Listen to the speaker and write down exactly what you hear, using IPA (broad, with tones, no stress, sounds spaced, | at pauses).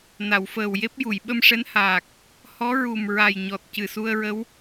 n a˨˩˨ w f əː˨˩ w j e˦˥ p̚ j u˨˩˨ j ɓ ə˧ m ʂ ɛ˧˥ n h aː˨˩ k̚ | h ɔ˧˥ ɹ u˨˩ m ɹ a˨˩ j ɲ ɔ˨˩ t̚ c ɨ˨˩ s u˧ ə̯ ɹ ə˧˥ w